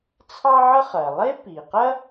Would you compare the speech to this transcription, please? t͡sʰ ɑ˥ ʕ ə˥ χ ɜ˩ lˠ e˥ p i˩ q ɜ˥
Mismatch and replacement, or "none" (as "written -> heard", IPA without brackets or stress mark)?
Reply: none